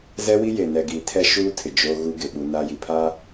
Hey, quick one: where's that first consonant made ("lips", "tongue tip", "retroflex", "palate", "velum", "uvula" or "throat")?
tongue tip